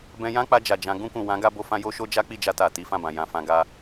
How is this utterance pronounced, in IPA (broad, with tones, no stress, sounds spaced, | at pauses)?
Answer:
b ɛ̃˧ j ã˦ k͡p a˧ d͡ʒ a˨ d͡ʒ ã˨˦ ɡ ũ˧ k ũ˨ w ã˨˦ ɡ a˧ b o˦ f ã˦ j o˦ ʃ o˦ d͡ʒ a˦ k͡p i˦˨ d͡ʒ a˧ t a˨ t i˨˦ f ã˦˨ b ã˨ j ã˧ f ã˧ ɡ a˧